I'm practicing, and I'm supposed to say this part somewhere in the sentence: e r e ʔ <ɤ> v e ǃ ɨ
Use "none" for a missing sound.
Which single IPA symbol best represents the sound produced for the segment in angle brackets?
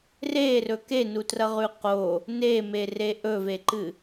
ɵ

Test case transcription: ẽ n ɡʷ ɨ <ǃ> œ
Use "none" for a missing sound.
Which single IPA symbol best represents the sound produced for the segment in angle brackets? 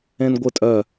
tʼ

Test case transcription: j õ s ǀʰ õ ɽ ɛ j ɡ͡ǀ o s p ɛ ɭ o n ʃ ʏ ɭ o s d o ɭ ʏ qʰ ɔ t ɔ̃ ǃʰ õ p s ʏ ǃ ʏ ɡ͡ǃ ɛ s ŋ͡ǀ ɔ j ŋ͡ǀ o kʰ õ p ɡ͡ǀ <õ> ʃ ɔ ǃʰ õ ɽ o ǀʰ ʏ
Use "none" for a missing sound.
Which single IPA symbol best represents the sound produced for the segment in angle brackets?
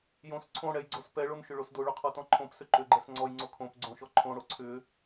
õ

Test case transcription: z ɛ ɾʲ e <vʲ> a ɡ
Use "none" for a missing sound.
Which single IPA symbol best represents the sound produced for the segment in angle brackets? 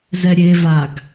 v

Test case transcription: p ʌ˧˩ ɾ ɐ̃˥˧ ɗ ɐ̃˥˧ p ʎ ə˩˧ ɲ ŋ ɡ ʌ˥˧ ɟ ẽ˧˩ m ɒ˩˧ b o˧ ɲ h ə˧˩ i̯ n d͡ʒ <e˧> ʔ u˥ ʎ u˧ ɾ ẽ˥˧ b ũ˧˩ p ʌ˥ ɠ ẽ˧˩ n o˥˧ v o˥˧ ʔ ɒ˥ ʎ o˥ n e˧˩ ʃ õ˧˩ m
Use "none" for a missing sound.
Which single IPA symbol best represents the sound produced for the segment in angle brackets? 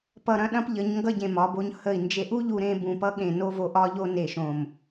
e˧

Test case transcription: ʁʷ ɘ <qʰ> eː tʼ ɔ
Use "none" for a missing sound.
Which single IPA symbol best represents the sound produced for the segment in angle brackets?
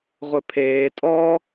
pʰ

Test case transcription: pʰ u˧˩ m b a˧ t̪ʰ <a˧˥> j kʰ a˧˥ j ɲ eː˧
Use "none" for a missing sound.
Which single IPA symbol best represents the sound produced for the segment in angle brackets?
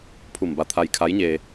a˧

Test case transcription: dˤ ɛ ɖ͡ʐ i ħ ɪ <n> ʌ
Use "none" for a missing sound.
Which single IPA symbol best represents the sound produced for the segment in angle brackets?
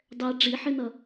n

